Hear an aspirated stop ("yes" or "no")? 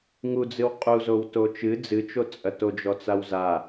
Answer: no